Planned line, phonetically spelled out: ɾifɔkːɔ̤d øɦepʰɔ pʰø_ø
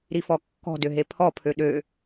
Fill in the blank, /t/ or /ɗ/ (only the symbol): ɗ